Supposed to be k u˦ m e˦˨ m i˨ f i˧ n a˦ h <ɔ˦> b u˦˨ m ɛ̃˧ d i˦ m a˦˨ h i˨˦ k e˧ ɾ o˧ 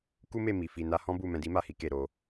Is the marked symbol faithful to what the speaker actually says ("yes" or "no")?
no